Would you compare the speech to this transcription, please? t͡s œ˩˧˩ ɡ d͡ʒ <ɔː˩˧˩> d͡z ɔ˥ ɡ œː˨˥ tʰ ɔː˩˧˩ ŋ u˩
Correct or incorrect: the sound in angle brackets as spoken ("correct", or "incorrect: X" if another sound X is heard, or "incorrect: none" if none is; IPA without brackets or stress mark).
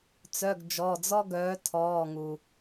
incorrect: ɔ˩˧˩